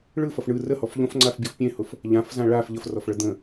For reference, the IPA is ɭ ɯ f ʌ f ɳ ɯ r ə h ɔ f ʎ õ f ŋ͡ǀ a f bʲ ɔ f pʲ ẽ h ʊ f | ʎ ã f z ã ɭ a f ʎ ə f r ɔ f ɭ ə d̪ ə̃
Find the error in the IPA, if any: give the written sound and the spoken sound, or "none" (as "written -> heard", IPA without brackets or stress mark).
none